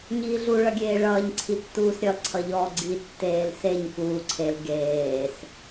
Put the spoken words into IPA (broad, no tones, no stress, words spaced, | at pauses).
ɲiːɮu ɭʌɡʲeːɭʌːɲ ǀʰitːuːsɾʲʌ ǀʰʌʎɔːɡ͡ǀi tːeːlseɲ kuːǀʰel ɡeːs